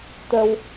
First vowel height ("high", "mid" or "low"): mid